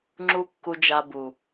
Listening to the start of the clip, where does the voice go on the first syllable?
high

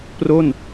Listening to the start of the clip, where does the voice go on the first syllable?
falling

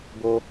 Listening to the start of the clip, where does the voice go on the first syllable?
high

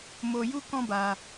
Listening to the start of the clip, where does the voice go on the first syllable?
low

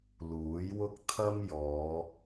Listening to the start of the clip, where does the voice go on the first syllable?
rising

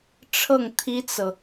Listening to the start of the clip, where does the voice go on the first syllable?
falling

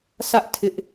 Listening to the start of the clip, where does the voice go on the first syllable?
high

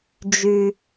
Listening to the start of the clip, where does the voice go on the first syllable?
low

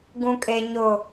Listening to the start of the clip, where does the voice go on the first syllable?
low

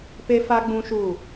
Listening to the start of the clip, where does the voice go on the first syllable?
high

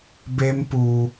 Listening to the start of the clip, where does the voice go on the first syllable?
high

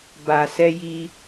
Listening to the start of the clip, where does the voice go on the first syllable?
low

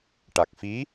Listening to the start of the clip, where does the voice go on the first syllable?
low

